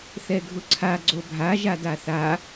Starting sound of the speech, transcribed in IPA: θ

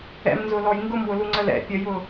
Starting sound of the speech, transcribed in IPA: ɛ̰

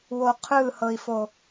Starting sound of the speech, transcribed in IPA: w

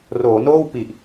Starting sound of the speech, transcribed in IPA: r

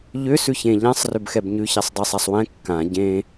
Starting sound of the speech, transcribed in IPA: ʎ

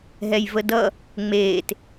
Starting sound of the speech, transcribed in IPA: ɦ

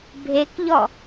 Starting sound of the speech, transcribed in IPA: bʱ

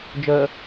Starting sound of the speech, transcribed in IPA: d͡ʒ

